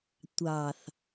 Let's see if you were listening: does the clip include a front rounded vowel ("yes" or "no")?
no